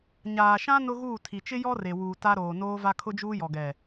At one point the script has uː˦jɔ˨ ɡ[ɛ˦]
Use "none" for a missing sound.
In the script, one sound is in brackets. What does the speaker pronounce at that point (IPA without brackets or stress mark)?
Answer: ɛ˨